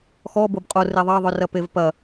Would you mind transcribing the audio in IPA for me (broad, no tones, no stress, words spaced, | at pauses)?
xɔ bobqʼo reðˤɑðˤʊrɐ pevpɐ